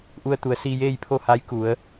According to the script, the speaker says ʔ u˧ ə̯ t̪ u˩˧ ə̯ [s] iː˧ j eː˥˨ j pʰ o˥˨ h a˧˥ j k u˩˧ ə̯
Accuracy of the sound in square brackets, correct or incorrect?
correct